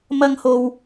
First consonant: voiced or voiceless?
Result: voiced